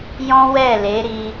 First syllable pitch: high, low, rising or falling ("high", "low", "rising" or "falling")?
high